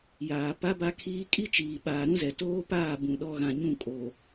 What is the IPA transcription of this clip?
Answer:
jaː˨pa˦ba˦kʰiː˦ kʼi˦t͡ʃiː˨ ɓaː˨ɾũ˦zɛ˨ toː˦paː˦˨bũ˨ ɗɔ˦ɣã˨ɲũ˦˨ kʼo˨

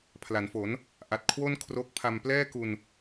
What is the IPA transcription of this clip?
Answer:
pʰla˩˦nfo˩˦n | ʔa˨˩t̚kʰwo˥˩n kʰro˦˥k̚pʰa˧m plɛː˥˩ku˧n

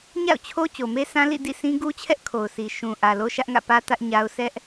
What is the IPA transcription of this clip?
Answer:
ɲa̰˦˨ʊ̯t͡ɕʰo˦ t͡ɕo˨me˦sã˦ lḭ˦˨ dḭ˦˨sĩ˦ ɡu˦ t͡ɕʰɛ˦ʔkʰo˨ʊ̯si˨ ʃũ˨ ʔä˨ lo˦ʃä˦ʔŋä̰˦˨pä˦ tä˦ʔɲa˦ʊ̯ sɛ˦ʔ

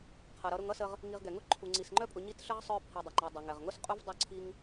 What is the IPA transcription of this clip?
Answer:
qʰʌ˩ɾʌ˨ ɾʊ˨ŋʌ˦sə˨ʁ | ŋi˨ʁ ɡɛ˩ŋʊ˦ ǃʰu˩ŋ͡ǀi˩sŋ͡ǃœ˦pʼʊ˨ ɲi˦tɬə˥ʁ sˤœ˦pʰi˨ dˤɛ˩ŋ͡ǃɛ˨ dˤʌ˩ŋɛ˩ʁŋʊ˥sqʼu˥v dˤœ˥ǀʰi˥ŋ

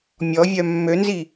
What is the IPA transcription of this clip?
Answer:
mʲɔvʲœ mːønzi

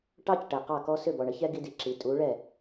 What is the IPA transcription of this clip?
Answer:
ʈɑ˦cʈɛ˨qɑ˦˨kɔ˦ sʏ˦˨bɔ˨ɳə˦çɛ˦ ɡi˦di˨ǁi˨ tʼu˨˦ɭɛ˦˨

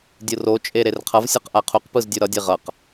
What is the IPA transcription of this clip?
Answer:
dʲɯrot͡ʃʼe ɾerqʰʌvsʲʌq ʔaqʰuqpɯz dʲuɾʌdʲe ʁʌq

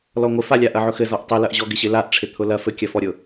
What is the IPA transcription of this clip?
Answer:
lɔŋʷɪfalʲa ʔɐʕʊxɘ zɔʔtˤɪlɐʔʑɔ ɡɪɕɪlaʔʈ͡ʂʰɪ t̪ʰʊlɐ fɘkʲɐfɔɾʲʊ

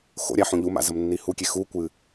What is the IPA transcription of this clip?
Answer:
xo̰ɾʲa ħũʎuma̰ zɐmnːihukʲe xukʷɨ

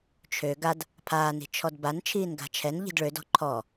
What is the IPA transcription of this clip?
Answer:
t͡ʃʰø ɡad | pʰaːni̤ t͡ʃʰɔdban t͡ʃʰiːnɡa̤t͡ʃʰɛn ʎi̤dɭødɔ̤ ǃʰɔ

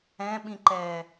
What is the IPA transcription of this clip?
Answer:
ɛ̃ɓĩǃɛː

